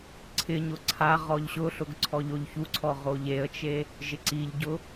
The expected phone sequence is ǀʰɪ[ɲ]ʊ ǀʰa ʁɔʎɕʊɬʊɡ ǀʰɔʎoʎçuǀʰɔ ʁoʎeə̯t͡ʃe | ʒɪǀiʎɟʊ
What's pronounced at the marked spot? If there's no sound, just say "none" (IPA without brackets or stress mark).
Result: ɲ